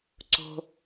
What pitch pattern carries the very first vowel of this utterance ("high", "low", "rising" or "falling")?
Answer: high